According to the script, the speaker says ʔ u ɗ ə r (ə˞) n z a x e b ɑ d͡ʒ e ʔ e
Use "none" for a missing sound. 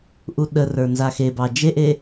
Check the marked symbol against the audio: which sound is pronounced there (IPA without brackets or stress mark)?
ə˞